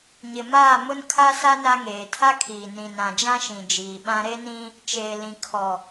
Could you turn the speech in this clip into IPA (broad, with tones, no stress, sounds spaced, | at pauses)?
ɲ ɪ˨ m aː˦˨ m ʊ˦ n kʰ a˦ s a˦ n a˦ ŋ eː˨ tʰ a˦ kʰ iː˨ n ĩ˨ n ã˨ d͡ʒ ã˦ ʃ ĩ˨ d͡ʒ iː˨ ɓ ã˦ ɾ e˦ n ĩ˦ | t͡ʃ eː˨ l ĩ˨ kʰ ɔ˨